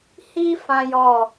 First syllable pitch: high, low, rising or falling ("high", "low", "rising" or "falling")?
high